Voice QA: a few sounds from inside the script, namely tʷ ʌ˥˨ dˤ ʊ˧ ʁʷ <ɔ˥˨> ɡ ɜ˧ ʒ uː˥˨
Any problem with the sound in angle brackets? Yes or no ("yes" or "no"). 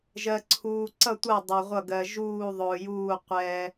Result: yes